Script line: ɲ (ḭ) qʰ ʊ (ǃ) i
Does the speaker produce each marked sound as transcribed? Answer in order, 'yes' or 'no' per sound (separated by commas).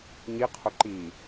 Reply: no, yes